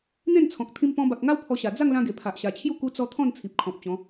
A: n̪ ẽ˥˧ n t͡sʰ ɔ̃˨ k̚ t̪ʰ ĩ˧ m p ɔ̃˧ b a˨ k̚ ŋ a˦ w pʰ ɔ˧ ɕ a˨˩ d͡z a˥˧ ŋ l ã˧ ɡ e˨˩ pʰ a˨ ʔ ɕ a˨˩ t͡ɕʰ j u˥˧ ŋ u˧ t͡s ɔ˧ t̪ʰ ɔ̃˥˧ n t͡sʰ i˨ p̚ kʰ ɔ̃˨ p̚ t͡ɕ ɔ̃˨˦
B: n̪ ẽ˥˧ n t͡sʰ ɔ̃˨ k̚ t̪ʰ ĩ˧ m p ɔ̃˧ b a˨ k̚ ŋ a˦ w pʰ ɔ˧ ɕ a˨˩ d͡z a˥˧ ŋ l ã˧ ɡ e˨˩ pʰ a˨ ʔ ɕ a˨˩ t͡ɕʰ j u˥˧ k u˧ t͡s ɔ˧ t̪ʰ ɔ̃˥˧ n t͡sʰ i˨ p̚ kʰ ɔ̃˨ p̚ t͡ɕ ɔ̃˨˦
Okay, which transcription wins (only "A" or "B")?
B